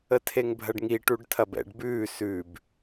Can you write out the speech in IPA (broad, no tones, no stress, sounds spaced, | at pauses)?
ə tʰ e ŋ bʱ ɐ ɖ ŋ i ʈ u ɖ tʰ ɐ b ɛ̰ ɖ b ʉː s ʉ b